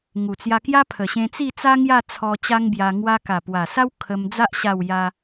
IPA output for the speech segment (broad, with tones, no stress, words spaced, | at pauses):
ŋu˨˩t͡sja˧kja˦ pʰə˨˩ɕẽ˧t͡si˥˧t͡sa˦ ŋja˥˧t͡sʰɔ˧ t͡ɕa˦ŋbja˧ ŋwa˧ka˨˩pwa˨˩sa˦w kʰə˧md͡za˦ʔ ɕa˥˧wja˦